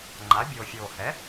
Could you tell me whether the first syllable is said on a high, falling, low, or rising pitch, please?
rising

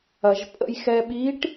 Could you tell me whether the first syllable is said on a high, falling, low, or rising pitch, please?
low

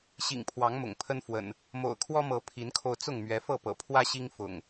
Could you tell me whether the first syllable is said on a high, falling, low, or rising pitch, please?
low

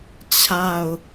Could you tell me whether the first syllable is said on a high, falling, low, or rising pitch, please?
falling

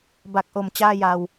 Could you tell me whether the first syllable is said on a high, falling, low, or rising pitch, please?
low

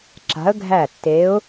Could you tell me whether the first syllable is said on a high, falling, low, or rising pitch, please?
rising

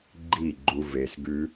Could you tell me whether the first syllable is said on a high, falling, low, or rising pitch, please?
falling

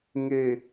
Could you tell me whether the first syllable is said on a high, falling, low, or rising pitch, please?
low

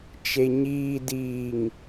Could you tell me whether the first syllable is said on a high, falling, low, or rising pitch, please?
low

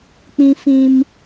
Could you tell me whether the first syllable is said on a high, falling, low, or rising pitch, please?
high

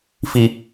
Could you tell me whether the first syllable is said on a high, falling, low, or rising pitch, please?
low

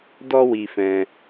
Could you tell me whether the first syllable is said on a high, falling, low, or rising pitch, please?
high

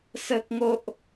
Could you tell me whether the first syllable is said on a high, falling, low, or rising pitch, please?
high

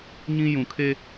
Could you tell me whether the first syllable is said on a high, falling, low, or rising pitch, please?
high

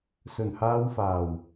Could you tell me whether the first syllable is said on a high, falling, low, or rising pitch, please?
low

